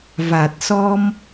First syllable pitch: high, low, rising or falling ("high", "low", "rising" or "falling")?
low